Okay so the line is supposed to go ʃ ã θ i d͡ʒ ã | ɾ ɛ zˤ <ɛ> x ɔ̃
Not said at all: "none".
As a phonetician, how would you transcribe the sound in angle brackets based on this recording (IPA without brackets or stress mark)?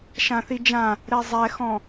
ɛ